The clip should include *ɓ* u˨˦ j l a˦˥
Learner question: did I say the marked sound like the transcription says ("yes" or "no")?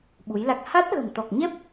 yes